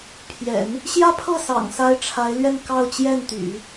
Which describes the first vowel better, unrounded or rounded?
unrounded